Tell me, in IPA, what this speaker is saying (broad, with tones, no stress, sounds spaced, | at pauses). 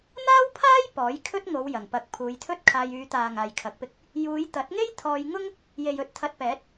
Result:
n̪ aː˥ w pʰ aː˥ j p ɔː˨˥ j kʰ ɵ˥ t̚ ŋ o˨˧ w j ɐ˨˩ ŋ p ɐ˨˥ k̚ pʰ uː˨˧ j t̪ʰ ɵ˥ t̚ kʰ aː˧ j yː˨˧ t̪ aː˨ ŋ aː˨ j kʰ ɐ˨˥ k̚ p ɪ˧ k̚ | j uː˨˧ j t̪ ɐ˨˥ t̚ ŋ e˥ j t̪ʰ ɔː˧ j ŋ ʊ˥ ŋ | j e˨ j ɵ˧ t̚ t̪ʰ ɐ˧ t̚ p ɛː˨˥ t̚